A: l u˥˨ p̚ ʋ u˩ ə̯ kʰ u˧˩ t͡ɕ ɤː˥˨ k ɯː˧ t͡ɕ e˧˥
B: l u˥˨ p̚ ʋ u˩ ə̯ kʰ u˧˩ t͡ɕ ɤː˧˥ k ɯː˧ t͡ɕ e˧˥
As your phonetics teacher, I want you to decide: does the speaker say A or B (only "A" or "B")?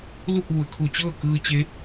A